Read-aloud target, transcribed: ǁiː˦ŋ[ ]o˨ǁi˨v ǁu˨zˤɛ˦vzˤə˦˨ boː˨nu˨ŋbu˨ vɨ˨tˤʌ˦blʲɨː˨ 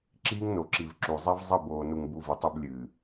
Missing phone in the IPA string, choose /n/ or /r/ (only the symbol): n